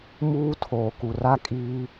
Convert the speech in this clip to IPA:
m uː˦ tʰ oː˨ k u˨ r a˦ kʼ iː˦

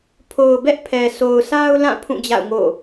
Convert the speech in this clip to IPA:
pʰ o˨ ʊ̯ b ɛ˦ ʔ pʰ ɛ˨ s o˨ ʊ̯ s a˦ ʊ̯ l ã˦˨ pʰ ũ˦˨ d͡ʑ a̰˦˨ ʊ̯ ŋ o̰˦˨

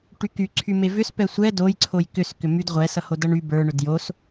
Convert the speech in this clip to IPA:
ʈ y k y ǀʰ y m e v ʏ s p ɛ sʷ ɛ d o j ǀʰ o j k ʏ s k ʏ m y d ʁʷ ɛ s ʌ h o d ʌ ɳ y b ə˞ ɳ ʏ d j o s

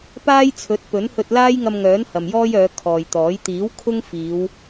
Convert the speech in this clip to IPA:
p aː˥ j t͡sʰ ɵ˨˥ t̚ p ɵ˨˥ n h ɵ˧ t̚ l aː˥ j ŋ ɐ˧ m ŋ œː˨˥ n h ɐ˨ m j ɔː˥ j œː˨˧ kʰ ɔː˨ j t̪ ɔː˨˥ j t̪ iː˨˥ w kʰ ʊ˥ ŋ f iː˨˧ w

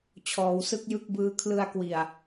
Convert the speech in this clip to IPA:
t͡ɕʰ ɔː˩˦ w s ɯ˦˥ k̚ j ɯ˥˩ k̚ b ɯː˦˥ kʰ l ɯ˧ a̯ k w i˨˩ a̯

